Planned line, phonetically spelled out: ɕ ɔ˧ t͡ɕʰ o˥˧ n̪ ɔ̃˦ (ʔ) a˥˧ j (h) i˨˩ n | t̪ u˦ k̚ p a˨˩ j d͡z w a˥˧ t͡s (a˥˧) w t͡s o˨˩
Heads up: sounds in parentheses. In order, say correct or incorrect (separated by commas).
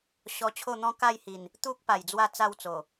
incorrect, correct, correct